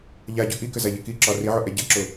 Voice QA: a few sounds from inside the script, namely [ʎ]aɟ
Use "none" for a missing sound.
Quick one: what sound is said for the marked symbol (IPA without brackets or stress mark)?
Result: ʎ